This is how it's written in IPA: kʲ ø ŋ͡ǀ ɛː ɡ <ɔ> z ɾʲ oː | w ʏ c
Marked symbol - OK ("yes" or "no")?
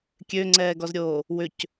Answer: yes